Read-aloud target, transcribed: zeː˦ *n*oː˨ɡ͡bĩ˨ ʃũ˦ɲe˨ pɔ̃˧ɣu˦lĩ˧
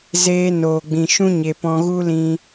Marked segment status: correct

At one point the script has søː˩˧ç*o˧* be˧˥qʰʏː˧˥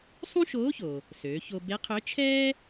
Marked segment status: correct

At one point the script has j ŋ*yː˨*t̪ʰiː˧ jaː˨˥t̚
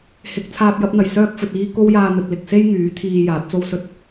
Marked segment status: incorrect: yː˨˥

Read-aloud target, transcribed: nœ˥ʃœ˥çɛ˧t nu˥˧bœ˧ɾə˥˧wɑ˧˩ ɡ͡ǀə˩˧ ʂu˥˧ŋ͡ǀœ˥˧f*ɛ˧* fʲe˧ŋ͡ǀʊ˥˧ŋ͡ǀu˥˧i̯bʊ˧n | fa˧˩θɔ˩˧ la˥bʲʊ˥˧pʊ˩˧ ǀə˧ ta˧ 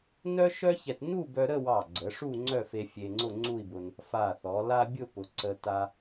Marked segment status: incorrect: e˧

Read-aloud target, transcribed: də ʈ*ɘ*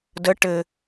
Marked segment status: correct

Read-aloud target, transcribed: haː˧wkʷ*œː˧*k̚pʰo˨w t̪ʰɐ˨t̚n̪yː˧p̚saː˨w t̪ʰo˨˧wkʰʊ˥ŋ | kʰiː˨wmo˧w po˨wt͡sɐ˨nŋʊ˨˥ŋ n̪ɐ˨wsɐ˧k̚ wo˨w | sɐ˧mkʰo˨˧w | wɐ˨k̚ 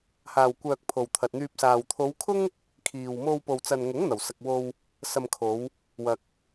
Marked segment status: correct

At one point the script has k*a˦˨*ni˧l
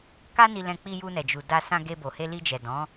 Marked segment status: incorrect: a˦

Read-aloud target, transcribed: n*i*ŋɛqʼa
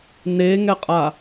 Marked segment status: incorrect: e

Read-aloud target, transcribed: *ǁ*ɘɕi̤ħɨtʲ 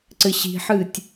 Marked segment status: incorrect: ǀ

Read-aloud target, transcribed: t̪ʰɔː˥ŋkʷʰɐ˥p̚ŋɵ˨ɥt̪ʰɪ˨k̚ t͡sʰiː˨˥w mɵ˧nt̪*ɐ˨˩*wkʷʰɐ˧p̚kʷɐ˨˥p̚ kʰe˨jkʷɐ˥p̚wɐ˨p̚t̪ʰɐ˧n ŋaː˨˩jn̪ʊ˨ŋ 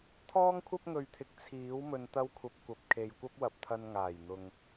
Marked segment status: incorrect: ɐ˥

